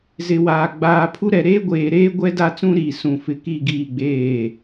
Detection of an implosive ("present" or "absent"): absent